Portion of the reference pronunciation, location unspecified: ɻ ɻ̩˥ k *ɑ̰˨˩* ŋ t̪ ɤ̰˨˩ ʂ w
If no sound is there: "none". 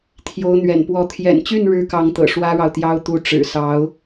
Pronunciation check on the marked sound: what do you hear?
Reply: ɑ˧˥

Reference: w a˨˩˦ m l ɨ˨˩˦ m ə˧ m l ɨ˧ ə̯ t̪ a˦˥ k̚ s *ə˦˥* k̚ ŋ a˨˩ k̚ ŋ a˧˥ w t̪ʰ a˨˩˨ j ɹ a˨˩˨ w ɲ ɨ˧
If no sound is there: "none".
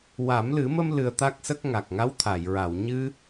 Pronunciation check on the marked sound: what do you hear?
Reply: ə˦˥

